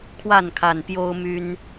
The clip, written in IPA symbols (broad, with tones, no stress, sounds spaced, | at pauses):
kʰ w a˥˨ n kʰ a˨˩ n p j o˦ ʊ̯ m y˦ n